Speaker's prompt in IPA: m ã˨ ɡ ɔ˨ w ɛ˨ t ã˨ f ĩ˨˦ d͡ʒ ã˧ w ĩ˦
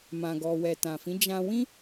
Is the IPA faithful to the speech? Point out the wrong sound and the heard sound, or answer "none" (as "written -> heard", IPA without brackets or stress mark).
none